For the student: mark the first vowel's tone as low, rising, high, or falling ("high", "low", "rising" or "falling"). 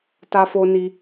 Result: high